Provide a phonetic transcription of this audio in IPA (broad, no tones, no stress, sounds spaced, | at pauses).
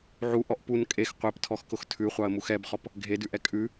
ʕ u ʔ ɔ ʔ p u n kʼ e x qʷ ɛ p tʰ ɔ x k ʊ x tʰ ʉ χʷ ɑ ə̯ m u x ɛ b χ ɔ p | ɡʱ e d ʉ ʔ ɛ kʼ ʉ